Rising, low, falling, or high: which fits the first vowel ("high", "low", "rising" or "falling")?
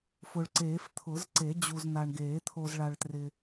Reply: low